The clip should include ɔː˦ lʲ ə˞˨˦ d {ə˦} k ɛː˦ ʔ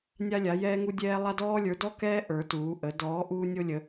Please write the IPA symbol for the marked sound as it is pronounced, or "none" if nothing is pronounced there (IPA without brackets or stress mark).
ɔ˦